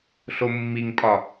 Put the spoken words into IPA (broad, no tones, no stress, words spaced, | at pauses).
ɬomːiŋpʼɒ